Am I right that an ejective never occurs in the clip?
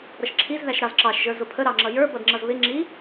yes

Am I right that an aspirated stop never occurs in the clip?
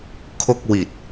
no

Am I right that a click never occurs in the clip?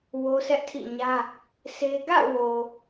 yes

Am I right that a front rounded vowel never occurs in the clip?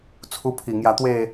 yes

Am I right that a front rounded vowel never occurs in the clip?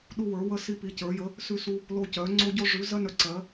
no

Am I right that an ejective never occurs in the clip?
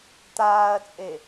no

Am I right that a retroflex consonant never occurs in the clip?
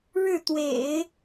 no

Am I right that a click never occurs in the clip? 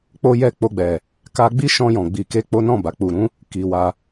yes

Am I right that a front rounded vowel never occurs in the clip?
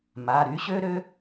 no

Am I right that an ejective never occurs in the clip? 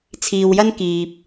yes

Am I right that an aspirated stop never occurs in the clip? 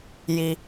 yes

